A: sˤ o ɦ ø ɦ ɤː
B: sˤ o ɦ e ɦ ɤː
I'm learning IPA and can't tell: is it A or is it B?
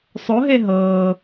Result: B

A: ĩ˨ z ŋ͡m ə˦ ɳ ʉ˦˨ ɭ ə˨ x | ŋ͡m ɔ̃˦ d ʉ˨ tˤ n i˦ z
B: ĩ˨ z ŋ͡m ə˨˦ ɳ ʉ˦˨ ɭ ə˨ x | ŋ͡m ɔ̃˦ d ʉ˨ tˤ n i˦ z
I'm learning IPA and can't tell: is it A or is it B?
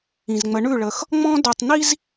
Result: B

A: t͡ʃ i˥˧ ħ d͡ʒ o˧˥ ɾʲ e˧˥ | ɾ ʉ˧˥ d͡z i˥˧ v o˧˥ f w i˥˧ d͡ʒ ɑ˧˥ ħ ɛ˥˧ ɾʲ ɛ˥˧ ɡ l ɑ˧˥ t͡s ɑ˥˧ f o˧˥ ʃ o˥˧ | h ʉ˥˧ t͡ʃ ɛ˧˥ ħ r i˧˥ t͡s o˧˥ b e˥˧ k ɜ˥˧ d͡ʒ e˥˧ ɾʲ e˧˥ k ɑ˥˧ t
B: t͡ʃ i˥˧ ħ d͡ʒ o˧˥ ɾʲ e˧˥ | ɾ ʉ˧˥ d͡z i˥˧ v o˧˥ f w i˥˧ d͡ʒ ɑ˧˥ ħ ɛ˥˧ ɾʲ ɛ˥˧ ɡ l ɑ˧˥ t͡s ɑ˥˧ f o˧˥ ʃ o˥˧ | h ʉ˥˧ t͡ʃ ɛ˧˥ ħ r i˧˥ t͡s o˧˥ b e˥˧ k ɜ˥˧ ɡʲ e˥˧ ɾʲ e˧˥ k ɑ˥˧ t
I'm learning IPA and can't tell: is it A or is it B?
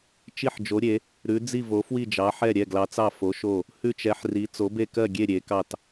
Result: B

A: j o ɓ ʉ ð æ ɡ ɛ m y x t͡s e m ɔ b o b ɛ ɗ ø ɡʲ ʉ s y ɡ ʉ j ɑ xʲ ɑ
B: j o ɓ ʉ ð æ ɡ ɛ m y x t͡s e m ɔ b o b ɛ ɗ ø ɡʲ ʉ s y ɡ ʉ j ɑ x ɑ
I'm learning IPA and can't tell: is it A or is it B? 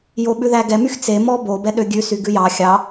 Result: A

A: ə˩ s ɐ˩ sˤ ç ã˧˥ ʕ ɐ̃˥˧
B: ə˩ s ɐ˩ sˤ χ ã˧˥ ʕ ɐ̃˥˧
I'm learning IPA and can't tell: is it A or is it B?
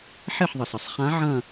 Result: B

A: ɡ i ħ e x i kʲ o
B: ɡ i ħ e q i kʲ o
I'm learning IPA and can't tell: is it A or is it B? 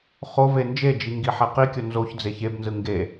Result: B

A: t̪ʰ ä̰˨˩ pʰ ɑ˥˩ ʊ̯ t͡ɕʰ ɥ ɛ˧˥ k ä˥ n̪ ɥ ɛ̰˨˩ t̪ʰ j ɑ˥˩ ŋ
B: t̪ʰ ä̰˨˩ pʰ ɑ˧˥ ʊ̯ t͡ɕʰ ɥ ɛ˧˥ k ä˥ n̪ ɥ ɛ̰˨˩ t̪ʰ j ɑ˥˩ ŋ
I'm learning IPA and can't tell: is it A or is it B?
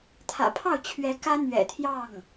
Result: A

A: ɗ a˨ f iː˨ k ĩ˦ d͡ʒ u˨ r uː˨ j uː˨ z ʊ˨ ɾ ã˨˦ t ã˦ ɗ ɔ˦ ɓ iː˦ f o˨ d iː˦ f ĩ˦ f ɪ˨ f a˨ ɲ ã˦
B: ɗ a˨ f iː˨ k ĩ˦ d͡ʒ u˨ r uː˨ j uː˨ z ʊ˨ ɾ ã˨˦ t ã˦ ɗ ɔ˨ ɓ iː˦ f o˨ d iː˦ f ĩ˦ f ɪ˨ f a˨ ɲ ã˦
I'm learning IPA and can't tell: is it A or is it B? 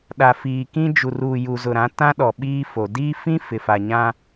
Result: B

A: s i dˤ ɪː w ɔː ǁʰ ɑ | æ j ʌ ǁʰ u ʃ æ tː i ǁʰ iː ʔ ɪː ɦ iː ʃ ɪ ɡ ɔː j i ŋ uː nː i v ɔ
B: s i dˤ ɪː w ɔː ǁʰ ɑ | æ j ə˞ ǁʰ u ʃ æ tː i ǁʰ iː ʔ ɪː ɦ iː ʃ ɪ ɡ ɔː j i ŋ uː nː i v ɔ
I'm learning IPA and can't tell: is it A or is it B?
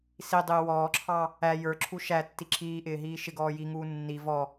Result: B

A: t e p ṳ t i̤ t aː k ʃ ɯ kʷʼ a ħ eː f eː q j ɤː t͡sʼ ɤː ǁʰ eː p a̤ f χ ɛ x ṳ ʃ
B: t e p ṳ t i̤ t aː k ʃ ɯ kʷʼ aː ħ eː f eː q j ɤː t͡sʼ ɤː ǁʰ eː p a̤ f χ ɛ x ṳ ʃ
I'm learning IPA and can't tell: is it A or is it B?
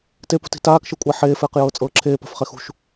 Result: A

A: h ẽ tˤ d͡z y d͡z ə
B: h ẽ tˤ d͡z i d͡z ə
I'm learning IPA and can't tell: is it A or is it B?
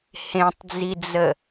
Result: B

